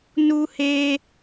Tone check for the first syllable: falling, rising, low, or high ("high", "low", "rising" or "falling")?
high